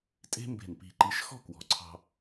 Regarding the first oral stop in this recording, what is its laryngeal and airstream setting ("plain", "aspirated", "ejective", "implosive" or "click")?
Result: ejective